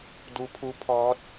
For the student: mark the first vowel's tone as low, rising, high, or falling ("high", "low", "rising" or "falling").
rising